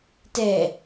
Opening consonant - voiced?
no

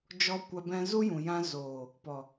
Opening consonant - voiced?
yes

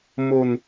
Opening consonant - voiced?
yes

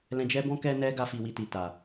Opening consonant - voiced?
yes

